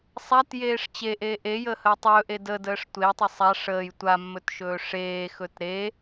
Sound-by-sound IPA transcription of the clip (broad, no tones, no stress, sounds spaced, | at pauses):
sˤ a t j eː ʂ t͡ɕ e ʔ eː ʔ e j əː h əː tˤ ɵː ʔ e d ə d əː ʂ tʷ e tˤ ə sˤ a ʂ əː j tʷ a mː ɵ t ʃ ɵː ʂ eː x ɵ t ɾ e